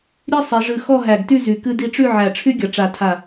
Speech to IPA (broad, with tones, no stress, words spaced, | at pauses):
ɾʲe˥sˤi˩˧ʐɨ˧˩ xɔ˥˧ɦæ˧˩ɡty˥˧zy˩˧ kɨ˧di˧ʈ͡ʂy˥˧ ʕæ˧˩ʈ͡ʂʰy˥ɡʲʌ˩˧ ʈ͡ʂa˧˩tʰa˧˩